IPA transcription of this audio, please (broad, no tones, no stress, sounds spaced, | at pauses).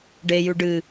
ɖ e j ʉ ɖ ɨ